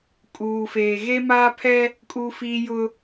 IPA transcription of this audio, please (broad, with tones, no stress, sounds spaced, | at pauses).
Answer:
kʼ uː˨ f eː˨ ɣ e˦ m aː˦ pʰ ɛ˦ | kʼ uː˦ f iː˦ j ʊ˦